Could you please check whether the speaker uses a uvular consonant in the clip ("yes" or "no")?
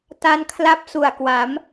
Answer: no